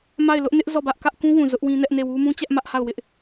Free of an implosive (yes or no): yes